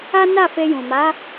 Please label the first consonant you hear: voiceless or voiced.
voiced